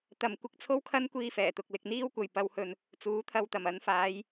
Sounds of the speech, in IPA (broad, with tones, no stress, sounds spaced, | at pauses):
t̪ ɐ˨ m kʷ ɪ˧ k̚ t͡sʰ o˥ w kʰ ɐ˥ n kʷ iː˥ f ɛː˨˩ t̪ ʊ˨ k̚ l ɪ˧ k̚ n̪ iː˥ w kʷ ɐ˨ j p ɐ˨˧ w h ɵ˨ n | t͡s uː˨˥ t̪ʰ ɐ˧ w t̪ ɐ˨˩ m ɐ˨˥ n f aː˨˧ j